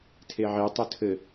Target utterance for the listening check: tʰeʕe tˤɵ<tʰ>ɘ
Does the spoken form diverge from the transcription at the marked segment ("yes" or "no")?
no